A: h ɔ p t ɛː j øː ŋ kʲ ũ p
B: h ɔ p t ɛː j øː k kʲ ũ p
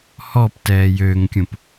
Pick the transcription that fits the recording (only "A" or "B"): A